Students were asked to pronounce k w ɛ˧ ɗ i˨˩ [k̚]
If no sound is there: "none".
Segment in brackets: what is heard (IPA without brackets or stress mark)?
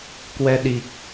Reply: k̚